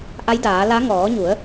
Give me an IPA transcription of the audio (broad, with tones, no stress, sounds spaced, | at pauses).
ʔ a˧˥ j d aː˩˧ l a˧˥ ŋ ɔː˩˧ ɲ u˩˧ ə̯